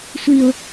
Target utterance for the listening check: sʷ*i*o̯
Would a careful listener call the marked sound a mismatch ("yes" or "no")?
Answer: no